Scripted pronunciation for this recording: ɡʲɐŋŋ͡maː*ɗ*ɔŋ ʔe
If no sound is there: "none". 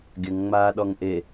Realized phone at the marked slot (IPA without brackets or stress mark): ɗ